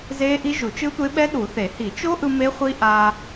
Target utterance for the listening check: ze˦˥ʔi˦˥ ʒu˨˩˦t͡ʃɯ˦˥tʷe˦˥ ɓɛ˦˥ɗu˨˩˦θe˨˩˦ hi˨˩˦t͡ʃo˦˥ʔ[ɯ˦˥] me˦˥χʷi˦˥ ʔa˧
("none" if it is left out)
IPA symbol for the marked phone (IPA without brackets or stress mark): ɯ˧